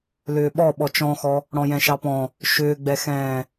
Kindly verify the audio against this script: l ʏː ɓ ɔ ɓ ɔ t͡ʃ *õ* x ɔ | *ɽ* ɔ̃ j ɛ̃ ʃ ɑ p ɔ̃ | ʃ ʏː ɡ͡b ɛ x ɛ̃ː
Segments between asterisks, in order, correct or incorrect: incorrect, correct

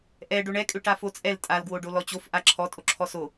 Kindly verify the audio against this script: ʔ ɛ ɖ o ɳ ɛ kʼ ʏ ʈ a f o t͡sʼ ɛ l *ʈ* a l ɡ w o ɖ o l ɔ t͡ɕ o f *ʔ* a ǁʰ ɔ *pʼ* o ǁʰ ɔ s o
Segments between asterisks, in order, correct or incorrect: incorrect, correct, incorrect

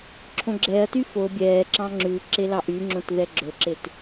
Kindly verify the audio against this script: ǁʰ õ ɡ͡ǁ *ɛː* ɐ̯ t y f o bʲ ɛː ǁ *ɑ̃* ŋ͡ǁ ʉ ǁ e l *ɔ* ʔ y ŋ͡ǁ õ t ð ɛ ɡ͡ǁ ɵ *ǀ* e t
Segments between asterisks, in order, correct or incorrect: correct, correct, incorrect, incorrect

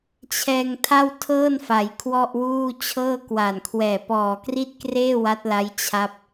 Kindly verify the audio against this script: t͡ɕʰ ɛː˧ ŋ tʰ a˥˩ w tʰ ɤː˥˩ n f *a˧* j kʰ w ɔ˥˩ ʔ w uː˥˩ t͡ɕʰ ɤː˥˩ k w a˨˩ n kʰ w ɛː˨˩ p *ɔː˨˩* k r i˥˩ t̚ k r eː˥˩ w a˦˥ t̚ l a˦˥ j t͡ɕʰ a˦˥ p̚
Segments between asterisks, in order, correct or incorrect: incorrect, correct

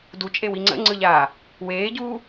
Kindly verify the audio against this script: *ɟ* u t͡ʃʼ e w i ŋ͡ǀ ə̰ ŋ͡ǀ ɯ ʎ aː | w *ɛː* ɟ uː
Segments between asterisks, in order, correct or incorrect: incorrect, incorrect

